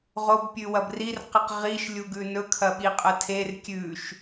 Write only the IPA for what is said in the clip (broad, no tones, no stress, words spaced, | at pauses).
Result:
ʁobpʲʉwɐb rirqɨq ʁiʃlʲuɡʉ nɵkʰɐɓiqʼɐ tʰer kʲʉʃ